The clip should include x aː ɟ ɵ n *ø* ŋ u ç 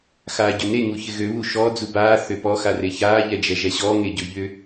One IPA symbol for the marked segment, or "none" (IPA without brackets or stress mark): e